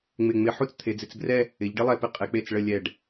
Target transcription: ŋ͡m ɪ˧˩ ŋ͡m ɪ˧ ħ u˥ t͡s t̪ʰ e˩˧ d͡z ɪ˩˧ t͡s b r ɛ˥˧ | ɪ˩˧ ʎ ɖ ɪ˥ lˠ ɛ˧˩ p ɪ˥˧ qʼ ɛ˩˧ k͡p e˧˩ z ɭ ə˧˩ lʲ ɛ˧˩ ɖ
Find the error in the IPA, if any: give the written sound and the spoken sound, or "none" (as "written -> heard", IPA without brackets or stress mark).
z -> t͡s